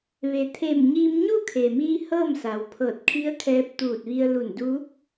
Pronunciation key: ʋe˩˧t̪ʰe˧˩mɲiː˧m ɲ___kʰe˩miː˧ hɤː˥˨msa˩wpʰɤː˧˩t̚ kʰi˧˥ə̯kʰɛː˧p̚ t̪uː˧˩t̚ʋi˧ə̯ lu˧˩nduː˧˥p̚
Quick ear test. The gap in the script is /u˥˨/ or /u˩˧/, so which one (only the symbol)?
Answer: u˥˨